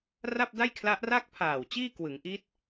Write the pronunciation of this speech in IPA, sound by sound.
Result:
r a˥˩ p̚ d a˥˩ j kʰ l a˦˥ ʔ r a˥˩ k̚ pʰ aː˨˩ w t͡ɕ iː˥˩ k w ɯ˩˦ ŋ ʔ i˦˥ t̚

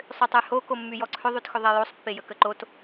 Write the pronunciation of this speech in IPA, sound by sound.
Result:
sˤ ʏ tˤ y h o k o mː y j ɔ ǀʰ ʏ ðˤ y t x ʏ ðˤ e j o sˤ pː e j ə k ə ǃ o t

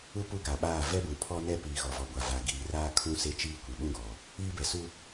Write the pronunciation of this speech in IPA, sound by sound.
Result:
u˦ p u˦ ɡ a˨ ɓ aː˦˨ v ɛ˦ b ũ˨ pʰ ɔ˦ n ɛ˦ p iː˨ ɣ ɔ˨ v ɔ˨ ɡʷ a˨ v a˨ ɡ iː˨ r aː˦ kʰ ũ˦ s e˦ t͡ʃ iː˦ kʷ i˨ ɓ ũ˦ ɡ ɔ˨ | iː˦ b ɛ˨ s u˦

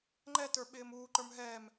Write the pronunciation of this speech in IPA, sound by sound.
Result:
ŋ͡ǃ ɛ t ə˞ ɓ ɪː m uː ǃ ə˞ m ɦ ɛ m

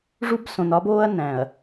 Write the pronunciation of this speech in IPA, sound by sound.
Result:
ʐ u˦ b s õ˨ n ɒ˦ b oː˦ ɐ̯ n æ̃˨ ɐ̯

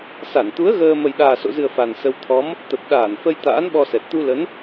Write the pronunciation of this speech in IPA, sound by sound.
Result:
s a˧˩ n t̪ u˨˦ ə̯ ɣ əː˧ m ə˨˩ j ɗ aː˨˩ s o̰˧˨ z ɨ˨˩ ə̯ f a˨˩ n s ə˧ w t̪ʰ ɔ˨˦ m | t̪ ə˨˩ p̚ ɗ aː˧˩ n f ə˧ j t̪ a̰ː˧˥ n ɓ ɔ˧ s ɛ˨˩ t̚ t̪ u˧ l ə˨˦ n

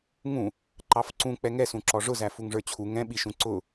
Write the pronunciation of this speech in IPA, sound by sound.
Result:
ŋ ũ | ǃ ɑ f ǀ ũ k͡p ɛ ŋ ɛ s ũ ǁ ɔ ʐ ʊ z æ f u ŋ ʐ ə˞ t͡ɕʰ u ŋ ɛ̃ ɓ i ʃ ũ ǀ ʊ

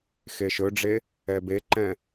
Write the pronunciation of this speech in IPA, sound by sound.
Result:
x e ʃ ɵ ɖ͡ʐ e | ɛ b e ǃ ɛ̃

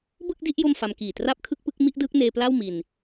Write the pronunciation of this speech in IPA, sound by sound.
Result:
b ɯ˥˩ k̚ d i˥˩ ʔ j o˥˩ m f a˧ m k iː˨˩ t r a˥˩ p̚ kʰ ɯ˥˩ k̚ p ɯ˥˩ k̚ m i˥˩ ʔ d ɯː˦˥ k̚ n eː˧ p l a˥˩ w m i˧ n

